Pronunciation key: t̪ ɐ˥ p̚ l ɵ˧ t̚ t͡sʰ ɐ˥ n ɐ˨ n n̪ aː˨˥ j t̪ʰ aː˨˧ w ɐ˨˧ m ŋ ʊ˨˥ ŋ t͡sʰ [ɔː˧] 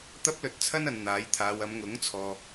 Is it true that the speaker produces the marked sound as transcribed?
no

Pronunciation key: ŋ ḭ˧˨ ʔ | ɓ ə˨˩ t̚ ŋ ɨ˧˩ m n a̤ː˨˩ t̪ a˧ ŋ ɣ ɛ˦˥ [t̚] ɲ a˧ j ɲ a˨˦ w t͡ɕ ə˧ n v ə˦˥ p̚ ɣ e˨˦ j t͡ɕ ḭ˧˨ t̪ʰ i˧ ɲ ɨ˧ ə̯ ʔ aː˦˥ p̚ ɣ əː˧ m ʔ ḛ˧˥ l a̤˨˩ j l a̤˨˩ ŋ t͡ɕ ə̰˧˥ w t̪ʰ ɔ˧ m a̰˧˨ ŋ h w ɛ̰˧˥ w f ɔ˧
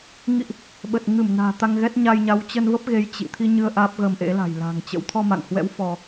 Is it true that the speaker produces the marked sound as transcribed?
yes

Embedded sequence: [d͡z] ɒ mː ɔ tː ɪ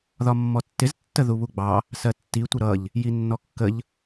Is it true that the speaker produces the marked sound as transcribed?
no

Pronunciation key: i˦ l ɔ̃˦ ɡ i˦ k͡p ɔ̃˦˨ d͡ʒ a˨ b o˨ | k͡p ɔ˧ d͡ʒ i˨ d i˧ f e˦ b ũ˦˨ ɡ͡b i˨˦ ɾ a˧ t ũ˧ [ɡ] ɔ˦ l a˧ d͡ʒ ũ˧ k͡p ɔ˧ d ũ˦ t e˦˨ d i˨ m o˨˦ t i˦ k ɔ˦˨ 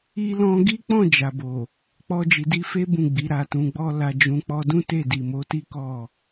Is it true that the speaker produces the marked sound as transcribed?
no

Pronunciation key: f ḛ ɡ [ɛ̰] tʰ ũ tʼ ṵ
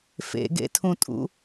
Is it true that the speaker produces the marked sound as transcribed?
no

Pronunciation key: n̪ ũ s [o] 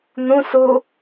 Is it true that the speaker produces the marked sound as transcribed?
no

